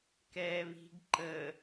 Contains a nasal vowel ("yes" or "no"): no